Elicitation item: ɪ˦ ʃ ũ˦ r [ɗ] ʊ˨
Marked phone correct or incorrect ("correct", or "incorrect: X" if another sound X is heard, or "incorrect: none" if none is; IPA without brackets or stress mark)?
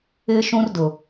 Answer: incorrect: d